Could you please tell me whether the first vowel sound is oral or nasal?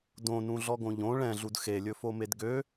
nasal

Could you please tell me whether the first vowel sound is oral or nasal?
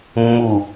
oral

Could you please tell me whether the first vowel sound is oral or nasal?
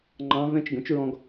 nasal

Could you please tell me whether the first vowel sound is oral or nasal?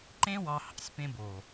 nasal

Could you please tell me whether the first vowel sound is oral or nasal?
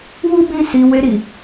oral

